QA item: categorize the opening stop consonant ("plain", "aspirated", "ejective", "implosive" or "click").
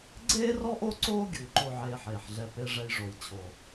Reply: click